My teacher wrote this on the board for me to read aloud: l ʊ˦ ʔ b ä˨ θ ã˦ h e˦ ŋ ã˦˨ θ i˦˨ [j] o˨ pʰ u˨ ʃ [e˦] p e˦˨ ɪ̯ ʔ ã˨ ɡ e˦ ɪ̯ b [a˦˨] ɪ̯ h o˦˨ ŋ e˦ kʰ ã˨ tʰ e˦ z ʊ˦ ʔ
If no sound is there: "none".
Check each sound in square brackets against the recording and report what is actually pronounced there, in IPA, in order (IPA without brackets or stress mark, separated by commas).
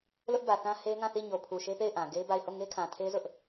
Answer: ɲ, e˦, a˦˨